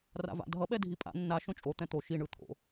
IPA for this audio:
r a̰ v a̰ dʱ ʌ ɓ ɛ dʱ i pʼ a̰ nː a ʃ õ t͡ʃʼ o t̪ ɛ̃ t̪ o ʃ i ɳ ɯ t̪ʰ o̰

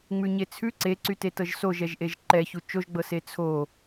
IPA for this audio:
ŋ͡m ʉ ɲ e t͡sʰ ʉ ǀ e ǀ y t e t ɤ ʒ s o ʒ ɛ ʒ ʔ e ʒ ǃ ɛ ç u t͡ʃ o ʒ ɡ͡b ɤ s e t͡sʰ o

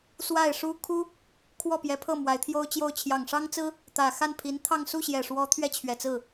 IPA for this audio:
s w a˥˩ ɪ̯ ʂ u˥ kʰ u˥ | kʰ w ɔ˥˩ p j ɛ˧˥ pʰ ɤ˥˩ m w a˧˥ ɪ̯ t̪ʰ j o˥ ʊ̯ t͡ɕ j o˥˩ ʊ̯ t͡ɕʰ j ɑ˨˩ ŋ ʂ ɑ˥ ŋ t͡s ɹ̩˥ | t̪ ä˨˩ x a˥˩ n pʰ i˧˥ n t̪ʰ ɑ˥˧ ŋ s u˥˩ ɕ j ɛ˨˩ ʂ w ɔ˧˥ t̪ʰ ɥ ɛ˥˩ t͡ɕʰ ɥ ɛ˨˩ t͡s ɹ̩˥˩

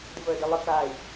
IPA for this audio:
d ə v əː d ə lˠ ə k a i̯

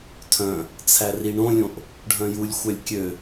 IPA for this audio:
tʰ œ̃ | t͡sʰ æ r i ɳ õ lʲ õ ʔ | ɖʱ œ̃ j u lʲ xʷ œ lʲ kʲ ø

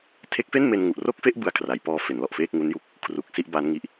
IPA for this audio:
tʰ e˦˥ k̚ f e˥˩ n m e˧ n ŋ u˨˩ ʔ r o˥˩ k̚ f e˥˩ ʔ b ɯ˦˥ a̯ kʰ r a˩˦ j p ɔː˧ f e˩˦ n l ɔ˨˩ ʔ f eː˥˩ k̚ ŋ u˦˥ n j u˦˥ k̚ | kʰ r u˨˩ k̚ s i˥˩ ʔ b a˦˥ n ŋ i˦˥ ʔ

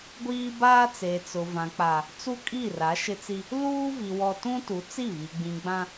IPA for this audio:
ɡʷ iː˦ b aː˦ t͡s e˨ t͡s ʊ˨ v ã˨ k͡p a˨ | t͡s u˦ kʼ i˦˨ r a˨˦ ʃ ɪ˦ t͡s i˦ | l uː˦ v i˨ w ɔ˦ t ũ˦ t u˨˦ t͡s i˦˨ β i˨ ɡ͡b ĩ˨ ɡ͡b ã˦

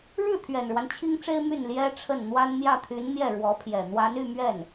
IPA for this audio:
ɻ ɻ̩˥˩ t̪ʰ ɥ ɛ˨˩ n ɻ w a˦ n t͡ɕʰ i˥ ŋ ʈ͡ʂ e˥ ɪ̯ m y˥˩ n l j ɛ˥ ʈ͡ʂʰ ə˥˩ n n̪ w a˥ n n̪ j ä˥˩ t̪ʰ y˧˥ n n̪ j ɛ˥˩ ɻ w ɔ˧˥ pʰ j ɛ˨˩ n̪ w a˧˥ n y˥˧ m ɥ ɛ˥˩ n

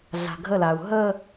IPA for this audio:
ɮ a̤ ɡʱ ə l a u̯ ɦ ə

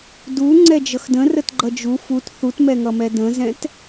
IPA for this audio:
d u ŋ͡ǀ ɛ d͡ʒ ʌ x d ə̃ r ə t ɡ͡ǃ ʌ d͡ʒ u f u t θ u t m ɛ ŋ ʌ m ɛ d ə̃ z ɛ̃ t

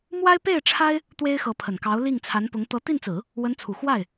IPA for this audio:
m w a˥ ɪ̯ p e˥˩ ɪ̯ ʈ͡ʂʰ a˥ ɪ̯ | t̪ w e˥ ɪ̯ x ɤ˧˥ pʰ ə˨˩ n k ɑ˧˥ ʊ̯ l i˥˩ ŋ t͡sʰ a˧˥ n p ʊ˧˥ ŋ t̪ ɤ˧˥ t̪ i˥˩ n t͡s ɹ̩˨˩˦ | w ə˧˥ n t͡sʰ u˨˩ x w a˥˩ ɪ̯

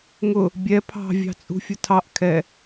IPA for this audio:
ŋ ʊ | bʲ ɛ pʰ ɑ̤ vʲ ɑ̤ t͡sʼ ṳ fʲ ʊ tʰ ɑ ʔ kʰ ɛ

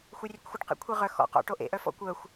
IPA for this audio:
xʷ œ rʲ ʊ kʷ xʷ ɪ ʈ q ḛ kʷʰ e ʁ œ x ɔ̰ q ɔ̰ ʈ o ʔ ḛ ʔ œ f ɔ̰ kʷ œ xʷ

